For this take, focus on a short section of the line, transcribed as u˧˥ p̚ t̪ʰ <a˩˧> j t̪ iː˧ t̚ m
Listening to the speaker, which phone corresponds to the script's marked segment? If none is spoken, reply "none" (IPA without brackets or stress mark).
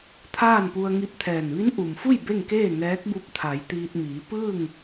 a˩˧